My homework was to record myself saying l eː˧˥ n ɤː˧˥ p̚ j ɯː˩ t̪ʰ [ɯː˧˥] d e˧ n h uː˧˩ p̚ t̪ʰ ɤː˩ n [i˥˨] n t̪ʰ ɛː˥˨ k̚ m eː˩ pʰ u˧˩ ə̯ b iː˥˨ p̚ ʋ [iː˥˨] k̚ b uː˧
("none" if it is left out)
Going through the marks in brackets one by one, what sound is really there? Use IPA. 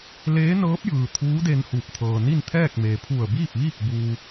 uː˧˥, i˥˨, iː˥˨

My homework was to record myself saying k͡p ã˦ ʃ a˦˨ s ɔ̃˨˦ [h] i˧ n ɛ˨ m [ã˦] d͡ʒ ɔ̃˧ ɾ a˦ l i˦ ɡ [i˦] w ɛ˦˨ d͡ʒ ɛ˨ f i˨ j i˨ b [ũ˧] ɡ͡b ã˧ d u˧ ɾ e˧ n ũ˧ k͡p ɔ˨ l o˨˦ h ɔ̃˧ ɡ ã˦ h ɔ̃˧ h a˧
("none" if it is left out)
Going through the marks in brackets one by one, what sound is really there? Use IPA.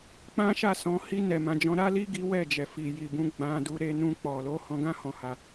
h, ã˨, i˦, ũ˧

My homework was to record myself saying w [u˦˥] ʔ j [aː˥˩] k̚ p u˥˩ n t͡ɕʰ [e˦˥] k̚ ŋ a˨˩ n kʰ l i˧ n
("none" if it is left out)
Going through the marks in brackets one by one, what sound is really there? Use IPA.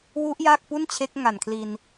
u˦˥, aː˥˩, e˦˥

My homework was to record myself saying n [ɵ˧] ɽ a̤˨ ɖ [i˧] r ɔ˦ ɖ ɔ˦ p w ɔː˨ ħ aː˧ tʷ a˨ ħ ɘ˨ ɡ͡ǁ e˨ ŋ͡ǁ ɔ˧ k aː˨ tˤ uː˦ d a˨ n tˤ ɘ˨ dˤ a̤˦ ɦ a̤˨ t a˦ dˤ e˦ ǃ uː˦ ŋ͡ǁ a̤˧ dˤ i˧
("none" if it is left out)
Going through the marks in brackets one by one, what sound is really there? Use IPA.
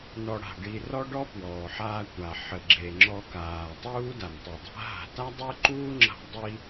ɔ˧, i˧

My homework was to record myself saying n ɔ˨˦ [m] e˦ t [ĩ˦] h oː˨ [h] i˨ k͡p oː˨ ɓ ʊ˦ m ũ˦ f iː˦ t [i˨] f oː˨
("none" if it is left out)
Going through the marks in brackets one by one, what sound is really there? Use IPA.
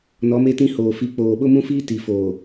m, ĩ˦, f, i˨

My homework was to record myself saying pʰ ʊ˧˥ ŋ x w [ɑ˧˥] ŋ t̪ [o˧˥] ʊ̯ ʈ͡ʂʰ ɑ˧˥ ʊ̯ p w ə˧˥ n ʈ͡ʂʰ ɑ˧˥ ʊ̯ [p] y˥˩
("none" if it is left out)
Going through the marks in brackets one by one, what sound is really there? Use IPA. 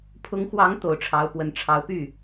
ɑ˧˥, o˨˩, p

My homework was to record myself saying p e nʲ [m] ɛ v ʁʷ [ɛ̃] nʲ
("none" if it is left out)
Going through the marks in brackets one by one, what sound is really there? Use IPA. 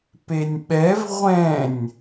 ɓ, ɛ̃

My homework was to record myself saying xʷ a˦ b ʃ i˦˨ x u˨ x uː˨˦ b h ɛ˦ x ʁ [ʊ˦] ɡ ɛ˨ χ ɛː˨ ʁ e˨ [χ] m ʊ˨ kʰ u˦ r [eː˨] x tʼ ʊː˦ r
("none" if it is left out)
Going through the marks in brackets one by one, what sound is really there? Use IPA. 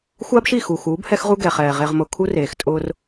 u˦, ʁ, eː˨

